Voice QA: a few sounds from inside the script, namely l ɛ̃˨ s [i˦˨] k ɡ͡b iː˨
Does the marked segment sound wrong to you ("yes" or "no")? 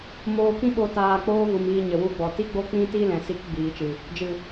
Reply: yes